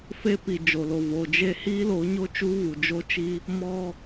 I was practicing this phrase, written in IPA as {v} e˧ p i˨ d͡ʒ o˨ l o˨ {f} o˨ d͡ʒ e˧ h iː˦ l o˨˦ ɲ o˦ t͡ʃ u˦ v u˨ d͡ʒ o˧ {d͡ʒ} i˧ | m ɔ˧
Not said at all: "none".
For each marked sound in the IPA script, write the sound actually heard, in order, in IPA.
f, v, t͡ʃ

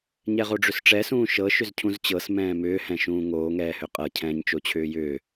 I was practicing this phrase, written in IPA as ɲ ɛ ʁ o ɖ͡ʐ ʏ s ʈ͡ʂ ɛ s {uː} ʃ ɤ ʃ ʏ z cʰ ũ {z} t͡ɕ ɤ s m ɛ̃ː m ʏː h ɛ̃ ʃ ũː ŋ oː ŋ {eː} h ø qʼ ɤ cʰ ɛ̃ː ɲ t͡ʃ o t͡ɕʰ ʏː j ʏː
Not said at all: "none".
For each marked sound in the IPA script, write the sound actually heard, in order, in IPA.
ũː, z, ɛː

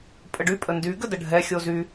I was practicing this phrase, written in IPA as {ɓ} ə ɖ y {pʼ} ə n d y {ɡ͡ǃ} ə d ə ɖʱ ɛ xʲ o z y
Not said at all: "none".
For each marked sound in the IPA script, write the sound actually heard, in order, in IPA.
pʼ, pʼ, ɡ

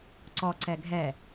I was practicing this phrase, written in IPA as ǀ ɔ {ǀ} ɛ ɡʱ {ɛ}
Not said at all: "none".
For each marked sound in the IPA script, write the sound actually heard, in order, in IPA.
ǀ, ɛ

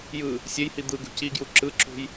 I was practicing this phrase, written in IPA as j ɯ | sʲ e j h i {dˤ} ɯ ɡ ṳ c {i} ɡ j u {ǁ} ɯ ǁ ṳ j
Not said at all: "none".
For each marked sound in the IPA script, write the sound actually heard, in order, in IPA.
d̪, i, ǁ

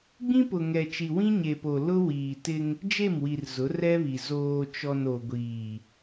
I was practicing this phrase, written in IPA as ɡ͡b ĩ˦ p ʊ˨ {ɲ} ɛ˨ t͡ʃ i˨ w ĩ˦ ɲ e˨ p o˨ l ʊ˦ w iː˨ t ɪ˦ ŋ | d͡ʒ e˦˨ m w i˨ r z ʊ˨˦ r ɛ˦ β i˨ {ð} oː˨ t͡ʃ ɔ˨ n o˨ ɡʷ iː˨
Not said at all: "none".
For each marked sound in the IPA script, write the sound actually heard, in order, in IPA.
ŋ, z

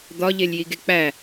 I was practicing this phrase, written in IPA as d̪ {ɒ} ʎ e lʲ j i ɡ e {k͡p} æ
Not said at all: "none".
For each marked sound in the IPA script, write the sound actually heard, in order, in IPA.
ɒ, k͡p

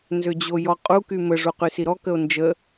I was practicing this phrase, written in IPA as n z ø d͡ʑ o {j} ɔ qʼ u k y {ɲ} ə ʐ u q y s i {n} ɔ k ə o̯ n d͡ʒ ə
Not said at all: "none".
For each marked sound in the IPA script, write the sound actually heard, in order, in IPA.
j, m, ɾ

